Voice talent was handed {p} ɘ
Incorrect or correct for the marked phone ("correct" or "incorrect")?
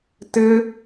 incorrect